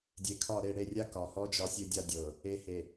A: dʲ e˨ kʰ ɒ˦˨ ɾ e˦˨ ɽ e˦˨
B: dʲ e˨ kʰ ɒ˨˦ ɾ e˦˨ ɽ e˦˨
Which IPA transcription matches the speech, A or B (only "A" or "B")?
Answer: A